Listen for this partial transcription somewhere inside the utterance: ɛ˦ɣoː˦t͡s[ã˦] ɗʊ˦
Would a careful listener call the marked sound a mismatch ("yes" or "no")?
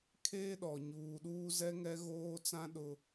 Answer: no